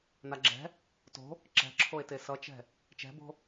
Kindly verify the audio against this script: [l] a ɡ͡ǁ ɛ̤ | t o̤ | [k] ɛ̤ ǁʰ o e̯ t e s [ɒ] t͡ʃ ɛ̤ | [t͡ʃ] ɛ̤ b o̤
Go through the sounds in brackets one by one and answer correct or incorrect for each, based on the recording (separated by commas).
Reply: incorrect, incorrect, incorrect, correct